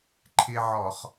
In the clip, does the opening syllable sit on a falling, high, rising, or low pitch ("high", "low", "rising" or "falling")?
high